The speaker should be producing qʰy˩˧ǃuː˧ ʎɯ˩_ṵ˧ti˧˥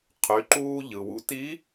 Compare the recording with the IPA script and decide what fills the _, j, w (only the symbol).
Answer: w